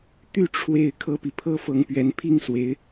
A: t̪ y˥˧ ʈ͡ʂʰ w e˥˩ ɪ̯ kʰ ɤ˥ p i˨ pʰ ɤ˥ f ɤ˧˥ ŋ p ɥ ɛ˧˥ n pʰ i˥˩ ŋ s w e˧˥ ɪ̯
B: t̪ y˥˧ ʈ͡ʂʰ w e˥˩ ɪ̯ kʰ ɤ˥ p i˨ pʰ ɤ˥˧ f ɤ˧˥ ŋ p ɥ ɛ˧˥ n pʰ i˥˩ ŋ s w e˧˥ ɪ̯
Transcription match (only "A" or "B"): A